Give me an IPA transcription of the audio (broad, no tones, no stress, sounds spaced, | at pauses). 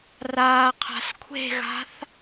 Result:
r aː qʰ a̤ s kʷʰ e̤ ɣ a̤ θ